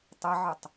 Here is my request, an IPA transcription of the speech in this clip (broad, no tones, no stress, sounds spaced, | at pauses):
tˤ ɛ ʕ ɨ tˤ